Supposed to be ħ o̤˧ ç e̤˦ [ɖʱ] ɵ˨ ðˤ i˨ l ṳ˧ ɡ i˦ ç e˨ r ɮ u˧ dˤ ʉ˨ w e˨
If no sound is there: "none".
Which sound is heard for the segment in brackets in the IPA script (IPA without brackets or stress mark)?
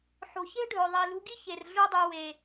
ɖʱ